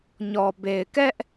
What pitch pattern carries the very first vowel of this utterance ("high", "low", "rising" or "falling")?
low